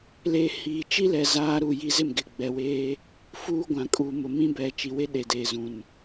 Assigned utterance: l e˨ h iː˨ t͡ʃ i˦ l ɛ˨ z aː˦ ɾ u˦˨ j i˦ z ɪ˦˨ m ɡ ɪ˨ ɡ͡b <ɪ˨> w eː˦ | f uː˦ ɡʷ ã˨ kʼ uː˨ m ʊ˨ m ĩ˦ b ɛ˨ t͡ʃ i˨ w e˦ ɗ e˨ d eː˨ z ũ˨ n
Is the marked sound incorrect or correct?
incorrect: ɛ˨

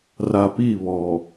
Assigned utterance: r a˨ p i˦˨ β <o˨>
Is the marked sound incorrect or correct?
incorrect: ɔ˨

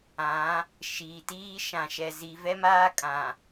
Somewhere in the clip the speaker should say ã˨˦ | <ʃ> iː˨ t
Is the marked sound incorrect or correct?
correct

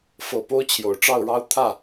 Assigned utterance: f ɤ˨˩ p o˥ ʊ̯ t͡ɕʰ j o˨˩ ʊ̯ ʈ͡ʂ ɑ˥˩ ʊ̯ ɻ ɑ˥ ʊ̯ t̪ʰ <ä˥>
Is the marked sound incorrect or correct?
incorrect: ä˥˩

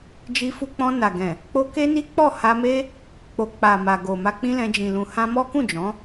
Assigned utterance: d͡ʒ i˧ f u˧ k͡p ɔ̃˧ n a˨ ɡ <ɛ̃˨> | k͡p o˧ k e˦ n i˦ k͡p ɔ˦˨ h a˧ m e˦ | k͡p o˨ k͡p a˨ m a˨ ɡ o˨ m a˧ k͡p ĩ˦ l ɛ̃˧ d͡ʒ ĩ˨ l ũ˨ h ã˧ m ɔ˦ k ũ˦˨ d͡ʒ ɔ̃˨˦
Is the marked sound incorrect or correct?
correct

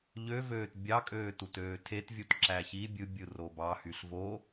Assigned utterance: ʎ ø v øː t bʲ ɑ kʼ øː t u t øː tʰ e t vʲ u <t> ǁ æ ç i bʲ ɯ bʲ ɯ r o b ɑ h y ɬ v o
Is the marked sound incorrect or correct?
correct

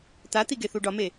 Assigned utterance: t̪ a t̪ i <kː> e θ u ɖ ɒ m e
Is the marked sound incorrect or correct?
incorrect: ɡ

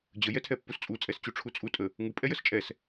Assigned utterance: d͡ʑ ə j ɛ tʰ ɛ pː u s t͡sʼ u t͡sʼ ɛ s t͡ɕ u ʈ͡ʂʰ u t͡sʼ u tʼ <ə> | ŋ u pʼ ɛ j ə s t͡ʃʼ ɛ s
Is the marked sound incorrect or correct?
correct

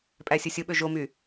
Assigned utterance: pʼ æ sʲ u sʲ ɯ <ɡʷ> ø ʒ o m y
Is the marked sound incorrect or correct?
incorrect: ɓ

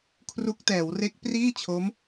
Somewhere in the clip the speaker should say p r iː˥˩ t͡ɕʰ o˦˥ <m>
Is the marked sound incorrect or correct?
correct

